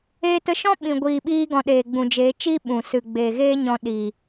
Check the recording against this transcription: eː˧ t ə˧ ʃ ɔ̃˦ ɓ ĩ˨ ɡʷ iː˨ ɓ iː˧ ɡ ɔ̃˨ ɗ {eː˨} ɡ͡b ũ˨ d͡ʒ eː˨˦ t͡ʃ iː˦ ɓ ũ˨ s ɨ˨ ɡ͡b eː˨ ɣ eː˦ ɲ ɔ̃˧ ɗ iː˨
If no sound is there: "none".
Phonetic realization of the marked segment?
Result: eː˨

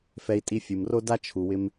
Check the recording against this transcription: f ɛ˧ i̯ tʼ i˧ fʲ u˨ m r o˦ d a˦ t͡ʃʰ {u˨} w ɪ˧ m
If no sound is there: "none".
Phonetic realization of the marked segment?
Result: u˨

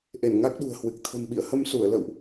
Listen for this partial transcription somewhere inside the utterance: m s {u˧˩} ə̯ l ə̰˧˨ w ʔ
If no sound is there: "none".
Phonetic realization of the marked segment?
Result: u˧˩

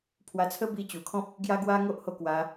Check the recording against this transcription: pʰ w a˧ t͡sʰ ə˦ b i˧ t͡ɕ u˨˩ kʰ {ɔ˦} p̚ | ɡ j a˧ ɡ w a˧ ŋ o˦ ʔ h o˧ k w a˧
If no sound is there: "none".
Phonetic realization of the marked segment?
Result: ɔ̃˦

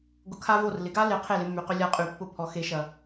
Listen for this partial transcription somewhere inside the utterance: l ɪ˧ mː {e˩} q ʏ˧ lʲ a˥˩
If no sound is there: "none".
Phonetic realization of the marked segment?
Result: y˩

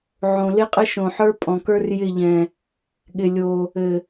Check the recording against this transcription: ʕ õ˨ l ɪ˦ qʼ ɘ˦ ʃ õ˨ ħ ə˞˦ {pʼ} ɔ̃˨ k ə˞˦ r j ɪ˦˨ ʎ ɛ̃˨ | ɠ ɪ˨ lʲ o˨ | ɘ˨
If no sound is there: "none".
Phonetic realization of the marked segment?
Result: pʼ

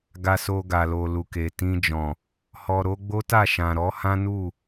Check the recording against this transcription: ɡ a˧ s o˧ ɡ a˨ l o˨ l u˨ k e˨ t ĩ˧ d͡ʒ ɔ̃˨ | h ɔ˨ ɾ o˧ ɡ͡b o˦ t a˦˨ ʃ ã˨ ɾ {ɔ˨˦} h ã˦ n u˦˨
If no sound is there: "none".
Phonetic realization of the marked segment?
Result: ɔ˨˦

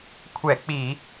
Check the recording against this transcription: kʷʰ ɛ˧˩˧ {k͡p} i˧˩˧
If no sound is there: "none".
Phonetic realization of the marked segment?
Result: k͡p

